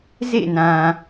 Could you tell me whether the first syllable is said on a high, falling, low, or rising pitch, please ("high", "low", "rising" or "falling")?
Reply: falling